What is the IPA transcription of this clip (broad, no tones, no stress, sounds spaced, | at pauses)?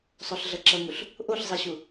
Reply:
sˤ o ɬ ɮ ʌ ǁ ʌ ŋ u ɬ | ʔ o ɬ zˤ i ɕ u